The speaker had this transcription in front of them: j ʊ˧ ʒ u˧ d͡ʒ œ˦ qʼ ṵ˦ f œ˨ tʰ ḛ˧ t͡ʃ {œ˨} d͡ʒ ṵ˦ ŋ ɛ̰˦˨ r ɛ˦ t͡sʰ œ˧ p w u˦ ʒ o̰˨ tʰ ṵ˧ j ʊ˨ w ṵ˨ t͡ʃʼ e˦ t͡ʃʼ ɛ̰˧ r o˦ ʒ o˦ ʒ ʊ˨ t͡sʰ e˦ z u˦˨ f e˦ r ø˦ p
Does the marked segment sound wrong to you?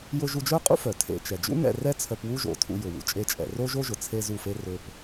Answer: yes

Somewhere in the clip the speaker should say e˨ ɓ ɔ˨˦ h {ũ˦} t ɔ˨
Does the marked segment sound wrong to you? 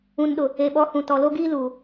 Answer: yes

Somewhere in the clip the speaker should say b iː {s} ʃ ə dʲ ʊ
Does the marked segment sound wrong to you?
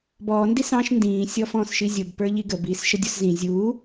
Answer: no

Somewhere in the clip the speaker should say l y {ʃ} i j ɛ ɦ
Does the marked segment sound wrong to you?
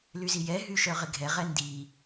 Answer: yes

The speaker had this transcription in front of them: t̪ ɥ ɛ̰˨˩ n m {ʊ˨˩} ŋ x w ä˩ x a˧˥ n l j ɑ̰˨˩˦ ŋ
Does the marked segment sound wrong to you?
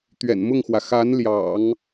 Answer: yes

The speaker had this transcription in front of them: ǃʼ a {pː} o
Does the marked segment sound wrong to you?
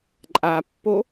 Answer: no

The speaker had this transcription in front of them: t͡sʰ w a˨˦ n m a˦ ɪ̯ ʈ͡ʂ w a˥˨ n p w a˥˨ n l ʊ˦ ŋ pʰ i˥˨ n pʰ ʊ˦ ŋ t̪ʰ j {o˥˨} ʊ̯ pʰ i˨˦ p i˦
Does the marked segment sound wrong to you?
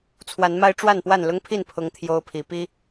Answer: yes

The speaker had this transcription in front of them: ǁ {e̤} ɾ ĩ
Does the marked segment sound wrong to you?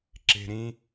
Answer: no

